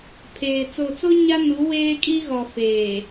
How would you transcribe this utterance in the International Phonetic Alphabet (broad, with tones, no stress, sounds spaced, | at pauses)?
pʰ eː˨ t͡s o˨ t͡s o˦ ɲ a˦ n u˨˦ w eː˦ kʼ i˦ ɣ ɔ˨ f eː˨